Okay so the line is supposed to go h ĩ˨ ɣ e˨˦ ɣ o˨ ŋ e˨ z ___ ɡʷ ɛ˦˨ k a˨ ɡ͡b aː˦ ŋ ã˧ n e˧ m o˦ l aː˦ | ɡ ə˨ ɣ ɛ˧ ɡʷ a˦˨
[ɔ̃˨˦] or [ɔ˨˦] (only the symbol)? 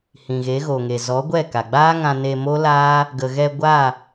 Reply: ɔ˨˦